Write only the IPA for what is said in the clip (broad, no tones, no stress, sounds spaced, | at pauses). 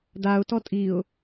d a ʊ̯ t ɔ tʼ i ʊ̯